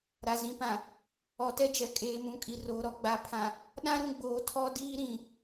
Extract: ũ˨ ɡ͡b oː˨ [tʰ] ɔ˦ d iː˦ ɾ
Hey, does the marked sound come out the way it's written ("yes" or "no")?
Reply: yes